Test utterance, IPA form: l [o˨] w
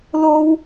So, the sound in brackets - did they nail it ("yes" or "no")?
no